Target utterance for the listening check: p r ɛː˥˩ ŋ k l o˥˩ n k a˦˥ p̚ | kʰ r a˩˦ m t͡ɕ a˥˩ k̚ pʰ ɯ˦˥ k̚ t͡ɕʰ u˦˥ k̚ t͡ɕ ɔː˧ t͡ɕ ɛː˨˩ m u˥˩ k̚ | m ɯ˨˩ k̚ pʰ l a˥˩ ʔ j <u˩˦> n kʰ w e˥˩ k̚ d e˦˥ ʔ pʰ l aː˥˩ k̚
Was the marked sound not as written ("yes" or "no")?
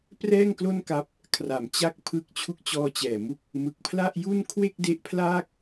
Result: yes